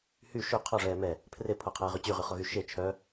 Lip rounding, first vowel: rounded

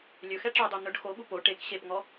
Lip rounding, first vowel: rounded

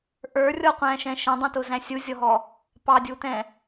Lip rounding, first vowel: unrounded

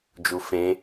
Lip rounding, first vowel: rounded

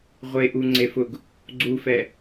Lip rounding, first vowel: unrounded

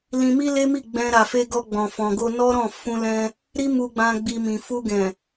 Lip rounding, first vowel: unrounded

